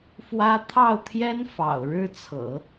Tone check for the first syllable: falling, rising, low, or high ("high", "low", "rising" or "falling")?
high